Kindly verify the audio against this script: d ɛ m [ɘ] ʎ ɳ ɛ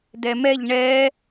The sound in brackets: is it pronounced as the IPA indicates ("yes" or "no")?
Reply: no